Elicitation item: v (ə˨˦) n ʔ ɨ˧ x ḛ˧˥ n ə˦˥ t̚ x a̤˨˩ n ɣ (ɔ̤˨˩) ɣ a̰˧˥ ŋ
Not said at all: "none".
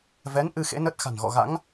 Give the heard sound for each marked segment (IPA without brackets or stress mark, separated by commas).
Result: ɛ˨˦, ɔ̰˧˨